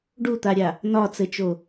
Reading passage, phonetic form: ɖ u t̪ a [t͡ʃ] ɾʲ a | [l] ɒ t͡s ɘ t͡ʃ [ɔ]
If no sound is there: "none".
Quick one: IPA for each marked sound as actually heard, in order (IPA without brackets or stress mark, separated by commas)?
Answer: none, n, o